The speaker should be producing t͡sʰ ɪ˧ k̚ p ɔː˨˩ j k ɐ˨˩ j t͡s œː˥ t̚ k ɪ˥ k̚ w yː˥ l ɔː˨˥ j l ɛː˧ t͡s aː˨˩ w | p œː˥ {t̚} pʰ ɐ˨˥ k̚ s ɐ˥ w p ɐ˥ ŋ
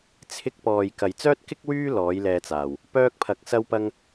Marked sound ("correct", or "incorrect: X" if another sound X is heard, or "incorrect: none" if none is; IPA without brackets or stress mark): incorrect: k̚